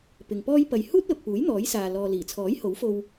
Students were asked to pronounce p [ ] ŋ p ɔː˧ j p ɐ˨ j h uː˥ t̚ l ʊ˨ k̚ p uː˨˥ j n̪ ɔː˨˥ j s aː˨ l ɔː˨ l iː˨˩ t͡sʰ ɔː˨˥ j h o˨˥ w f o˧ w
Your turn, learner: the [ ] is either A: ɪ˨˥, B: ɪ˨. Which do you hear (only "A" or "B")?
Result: B